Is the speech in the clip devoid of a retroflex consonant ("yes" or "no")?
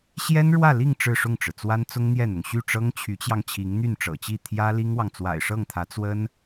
no